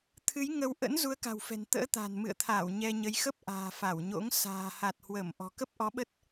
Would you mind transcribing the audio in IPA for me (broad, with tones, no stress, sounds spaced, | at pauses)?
t̪ʰ ɨ˨˦ j ŋ ə˧ w ʔ ə̰˧˥ n z u˨˦ ə̯ k a̤˨˩ w f ɛ̤˨˩ n t̪ ə̰ː˧˥ t̪ a̤˨˩ n m ɨ̰˧˨ ə̯ t̪ʰ aː˧˩ w ɲ ɛ˧ ɲ ə˨˦ j x ə˦˥ p̚ ʔ a̤ː˨˩ f a˧˩ w ɲ o̰˧˥ ŋ s a̤ː˨˩ h a˨˩ t̚ h w əː˧˩ m ʔ ɔ̤˨˩ k ə˦˥ p̚ ʔ ɔ˨˦ ɓ ə˦˥ t̚